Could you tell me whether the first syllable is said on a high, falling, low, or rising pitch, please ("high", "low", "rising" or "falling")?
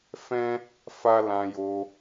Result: high